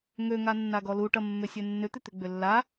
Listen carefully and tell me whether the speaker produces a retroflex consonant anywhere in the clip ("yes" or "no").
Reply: yes